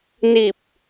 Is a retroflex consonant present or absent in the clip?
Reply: absent